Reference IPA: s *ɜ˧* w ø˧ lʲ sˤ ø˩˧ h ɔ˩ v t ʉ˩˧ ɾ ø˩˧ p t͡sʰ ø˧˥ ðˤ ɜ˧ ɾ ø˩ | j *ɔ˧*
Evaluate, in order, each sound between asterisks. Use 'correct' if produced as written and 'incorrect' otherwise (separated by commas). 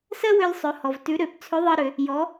incorrect, incorrect